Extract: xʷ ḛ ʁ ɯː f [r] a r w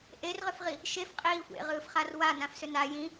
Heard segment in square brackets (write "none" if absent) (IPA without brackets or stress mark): χ